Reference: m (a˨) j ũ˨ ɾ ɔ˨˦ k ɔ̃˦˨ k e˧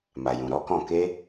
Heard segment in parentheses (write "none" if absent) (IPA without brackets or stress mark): a˨